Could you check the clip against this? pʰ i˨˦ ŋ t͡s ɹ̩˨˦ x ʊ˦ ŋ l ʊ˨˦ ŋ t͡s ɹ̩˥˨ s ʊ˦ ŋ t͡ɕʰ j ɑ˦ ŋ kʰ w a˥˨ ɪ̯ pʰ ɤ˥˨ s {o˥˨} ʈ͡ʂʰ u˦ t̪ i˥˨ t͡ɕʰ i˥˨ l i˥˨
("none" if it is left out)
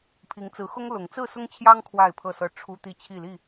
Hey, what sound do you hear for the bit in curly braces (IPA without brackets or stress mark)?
ɤ˥˨